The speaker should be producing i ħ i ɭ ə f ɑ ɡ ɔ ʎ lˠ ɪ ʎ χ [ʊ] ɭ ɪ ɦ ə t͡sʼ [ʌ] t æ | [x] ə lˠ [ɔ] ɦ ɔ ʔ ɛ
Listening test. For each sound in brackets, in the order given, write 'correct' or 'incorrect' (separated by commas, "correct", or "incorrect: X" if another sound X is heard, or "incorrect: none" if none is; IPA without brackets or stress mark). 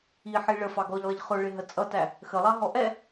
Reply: correct, correct, correct, incorrect: ɑ